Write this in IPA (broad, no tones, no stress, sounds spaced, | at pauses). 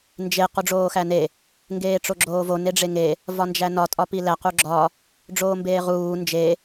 n d͡ʒ e q u ɖ͡ʐ oː x æ n e | ŋ ɡ eː ʈ͡ʂ o ɡ͡ǁ oː v o n e ɖ͡ʐ e ŋ e | v ɒ n d͡ʒ æ n ɒ tʼ ɒ p i l æ q u ɡ͡ǁ ɒ | ɖ͡ʐ oː m b eː ʁ uː n d͡ʒ e